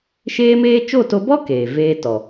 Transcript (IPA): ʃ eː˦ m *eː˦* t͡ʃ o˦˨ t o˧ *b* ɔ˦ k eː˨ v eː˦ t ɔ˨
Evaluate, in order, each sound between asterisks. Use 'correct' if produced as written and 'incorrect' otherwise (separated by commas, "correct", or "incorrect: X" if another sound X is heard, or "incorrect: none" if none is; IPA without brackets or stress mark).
correct, correct